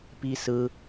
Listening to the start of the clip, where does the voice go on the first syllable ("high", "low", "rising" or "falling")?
high